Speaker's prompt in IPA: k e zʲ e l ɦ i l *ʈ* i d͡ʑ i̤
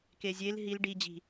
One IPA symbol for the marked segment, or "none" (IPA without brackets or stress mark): ɖ